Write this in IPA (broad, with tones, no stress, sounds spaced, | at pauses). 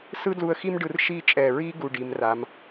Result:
s ɯ˥ d l u˧ ə̯ x i˥ m ɖ ɯ˧ r ʃ i˥˧ t͡ʃʼ ɛ˧˩ ɹ i˥ ɡ u˧˩ ɖ i˩˧ m r a˩˧ m